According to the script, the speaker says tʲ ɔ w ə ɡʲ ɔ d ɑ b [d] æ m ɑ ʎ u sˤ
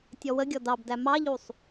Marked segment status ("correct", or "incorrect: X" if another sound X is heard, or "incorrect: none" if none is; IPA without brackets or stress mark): correct